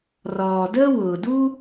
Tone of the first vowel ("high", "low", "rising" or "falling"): low